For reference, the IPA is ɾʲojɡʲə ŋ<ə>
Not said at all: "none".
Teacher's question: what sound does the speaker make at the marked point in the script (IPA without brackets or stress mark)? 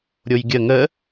ə